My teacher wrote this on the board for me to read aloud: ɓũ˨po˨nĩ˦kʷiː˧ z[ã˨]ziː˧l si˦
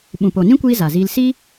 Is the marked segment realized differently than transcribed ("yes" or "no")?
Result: yes